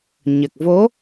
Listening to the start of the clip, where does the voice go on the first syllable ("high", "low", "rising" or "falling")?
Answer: low